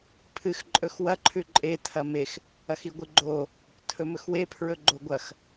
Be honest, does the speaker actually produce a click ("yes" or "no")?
yes